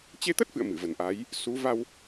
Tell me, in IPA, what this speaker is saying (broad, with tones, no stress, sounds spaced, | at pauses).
t͡ɕ e˧ t̪ ə˦˥ t̚ f ɨ̰˧˨ ə̯ m ɨ˧˩ v ə˨˩ n ʔ a˨˦ j | s u˨˦ v a˧ w